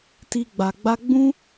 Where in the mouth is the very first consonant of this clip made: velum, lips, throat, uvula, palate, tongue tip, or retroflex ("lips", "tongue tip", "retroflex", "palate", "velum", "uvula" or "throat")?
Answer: tongue tip